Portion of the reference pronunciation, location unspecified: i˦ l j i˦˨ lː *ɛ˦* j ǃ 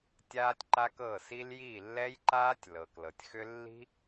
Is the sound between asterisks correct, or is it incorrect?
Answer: correct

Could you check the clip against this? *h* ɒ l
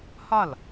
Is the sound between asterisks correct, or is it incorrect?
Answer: correct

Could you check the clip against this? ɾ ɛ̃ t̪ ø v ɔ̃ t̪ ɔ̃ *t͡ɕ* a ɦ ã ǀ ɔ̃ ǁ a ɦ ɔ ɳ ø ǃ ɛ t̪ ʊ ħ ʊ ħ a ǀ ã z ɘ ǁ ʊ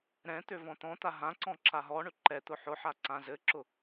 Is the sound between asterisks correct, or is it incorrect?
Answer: incorrect: t̪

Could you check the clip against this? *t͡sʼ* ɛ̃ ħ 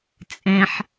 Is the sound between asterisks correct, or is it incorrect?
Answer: correct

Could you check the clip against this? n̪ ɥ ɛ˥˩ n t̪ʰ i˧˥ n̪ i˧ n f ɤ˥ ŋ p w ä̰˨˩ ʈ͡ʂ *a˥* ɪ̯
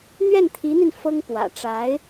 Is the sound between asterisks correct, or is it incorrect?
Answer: incorrect: a˧˥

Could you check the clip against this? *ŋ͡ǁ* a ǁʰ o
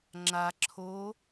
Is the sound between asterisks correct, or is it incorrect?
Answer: correct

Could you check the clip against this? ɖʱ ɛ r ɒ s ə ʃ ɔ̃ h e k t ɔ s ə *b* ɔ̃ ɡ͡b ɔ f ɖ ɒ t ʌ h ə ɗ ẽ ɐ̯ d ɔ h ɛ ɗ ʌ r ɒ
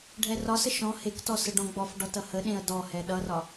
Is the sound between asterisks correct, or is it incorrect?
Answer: incorrect: ɖ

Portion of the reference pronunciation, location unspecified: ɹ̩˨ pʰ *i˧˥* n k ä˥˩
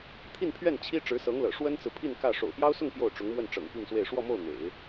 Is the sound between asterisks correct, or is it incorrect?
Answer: incorrect: i˥˧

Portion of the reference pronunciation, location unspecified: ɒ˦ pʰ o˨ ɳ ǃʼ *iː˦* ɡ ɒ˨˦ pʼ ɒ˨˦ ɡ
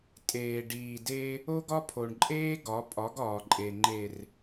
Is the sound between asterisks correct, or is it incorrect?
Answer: incorrect: eː˦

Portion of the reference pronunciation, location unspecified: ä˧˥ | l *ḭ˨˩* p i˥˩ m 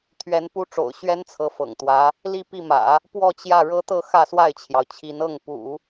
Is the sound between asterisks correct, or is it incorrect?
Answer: incorrect: i˥˧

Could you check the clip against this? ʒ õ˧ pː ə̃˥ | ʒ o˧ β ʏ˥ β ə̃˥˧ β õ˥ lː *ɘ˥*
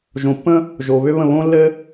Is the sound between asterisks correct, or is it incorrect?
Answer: correct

